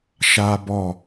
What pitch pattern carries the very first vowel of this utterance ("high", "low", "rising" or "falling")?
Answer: high